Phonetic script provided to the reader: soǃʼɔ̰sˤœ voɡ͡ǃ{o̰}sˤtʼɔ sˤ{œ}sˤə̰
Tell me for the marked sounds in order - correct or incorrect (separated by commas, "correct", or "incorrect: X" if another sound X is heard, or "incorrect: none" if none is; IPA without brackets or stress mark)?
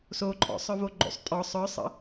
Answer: correct, correct